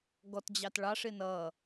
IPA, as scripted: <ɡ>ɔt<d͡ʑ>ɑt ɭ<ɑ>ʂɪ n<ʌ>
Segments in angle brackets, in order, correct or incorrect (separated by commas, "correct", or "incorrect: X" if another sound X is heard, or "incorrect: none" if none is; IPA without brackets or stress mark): correct, correct, correct, correct